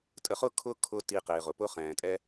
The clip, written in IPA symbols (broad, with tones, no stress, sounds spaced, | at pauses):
tʼ ə˧ χ ʊ˥ kʰ ʊ˥ kʰ ʊ˥ t i˧ q ɪː˩ ʁ ʊ˩ p ʊ˥ χ ɛ̃ː˩ tʼ ɛ˥